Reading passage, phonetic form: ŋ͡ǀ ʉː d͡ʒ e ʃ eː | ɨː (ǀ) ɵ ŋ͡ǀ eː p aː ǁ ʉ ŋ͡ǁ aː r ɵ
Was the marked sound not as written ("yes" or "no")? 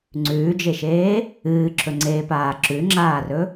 yes